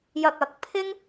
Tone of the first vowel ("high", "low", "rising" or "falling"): high